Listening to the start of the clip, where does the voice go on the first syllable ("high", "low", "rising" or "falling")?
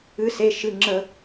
rising